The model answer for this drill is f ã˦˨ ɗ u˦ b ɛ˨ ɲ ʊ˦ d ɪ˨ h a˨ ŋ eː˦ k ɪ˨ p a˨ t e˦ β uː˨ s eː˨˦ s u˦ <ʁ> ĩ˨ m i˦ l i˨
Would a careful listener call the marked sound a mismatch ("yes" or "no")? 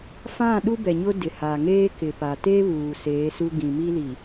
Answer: yes